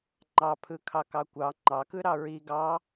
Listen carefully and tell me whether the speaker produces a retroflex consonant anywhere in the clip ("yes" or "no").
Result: no